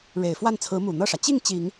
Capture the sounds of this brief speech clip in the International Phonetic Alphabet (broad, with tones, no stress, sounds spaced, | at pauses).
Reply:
ɻ e˨˩ ɪ̯ f w a˥˩ n t͡sʰ ɹ̩˧˥ m u˨˩ n̪ ɤ˥˩ ʂ ä˩ t͡ɕ i˥˩ ŋ t͡ɕ i˨˩˦ ŋ